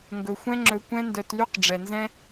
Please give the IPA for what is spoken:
ŋɡɵ˨xʷɛ̃˦ŋ͡ǁɵ˧ kʷɛ̃˦ndœ˧tly˦q ɖ͡ʐɛ˨nzɛ̃˦

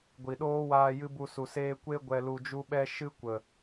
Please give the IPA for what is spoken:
ɡʷi˨ɗoː˦waː˧ jɨ˦bu˧su˨seː˦ kʷe˦ ɡʷɛ˧lu˧d͡ʒu˦ɓɛ˦ ʃɨ˦kʷə˨

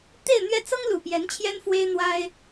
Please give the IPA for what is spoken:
t̪e˥˧ɪ̯n̪ɥɛ˥˩ t͡sɤ˥ŋlu˨˩pjɛ˧˥n t͡ɕʰjɛ˥nfwe˥ɪ̯ n̪wa˥ɪ̯

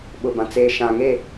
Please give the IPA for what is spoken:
ɓʊ˨bã˨ t͡seː˨ʃã˨ŋe˦˨

